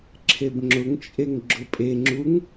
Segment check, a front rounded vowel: absent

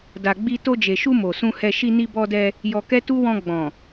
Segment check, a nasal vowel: present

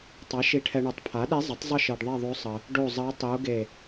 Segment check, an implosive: present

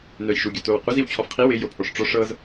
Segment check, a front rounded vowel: present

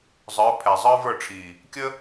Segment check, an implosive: absent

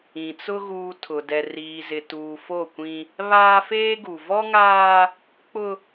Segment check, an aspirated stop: present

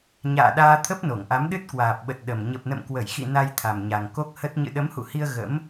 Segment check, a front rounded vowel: absent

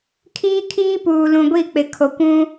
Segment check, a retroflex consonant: absent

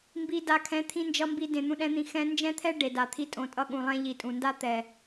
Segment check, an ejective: present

